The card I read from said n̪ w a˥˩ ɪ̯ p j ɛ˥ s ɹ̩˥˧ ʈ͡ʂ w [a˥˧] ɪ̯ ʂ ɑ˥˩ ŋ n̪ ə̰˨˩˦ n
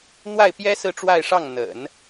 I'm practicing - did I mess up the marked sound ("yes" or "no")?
no